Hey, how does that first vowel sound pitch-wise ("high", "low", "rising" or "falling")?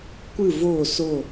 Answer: falling